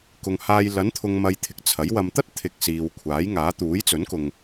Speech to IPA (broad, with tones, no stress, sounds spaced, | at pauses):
k ʊ˨ ŋ h aː˧ j l ɐ˨˥ n t̪ʰ ʊ˨ ŋ m ɐ˨ j t̪ʰ ɪ˨ k̚ t͡sʰ ɐ˨˥ j w ɐ˨ m t̪ ɐ˥ t̚ t̪ʰ ɪ˧ k̚ s iː˨ w kʷʰ aː˨˥ j ŋ aː˨˥ t̪ uː˨˥ j t͡s ɵ˨˥ n k ʊ˨ ŋ